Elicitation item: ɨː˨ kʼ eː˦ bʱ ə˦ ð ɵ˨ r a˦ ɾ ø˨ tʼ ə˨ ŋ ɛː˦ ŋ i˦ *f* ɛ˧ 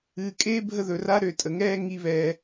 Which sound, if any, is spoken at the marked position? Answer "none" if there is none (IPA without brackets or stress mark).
β